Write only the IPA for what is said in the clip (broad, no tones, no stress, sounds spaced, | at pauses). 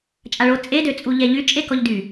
t͡ʃʼ a ɭ o t͡sʼ e d ø t͡sʼ u ʎ ɛ ʎ y t͡ʃʼ e k ɔ ʎ d y